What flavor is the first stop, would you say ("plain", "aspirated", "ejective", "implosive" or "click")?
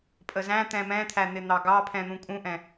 ejective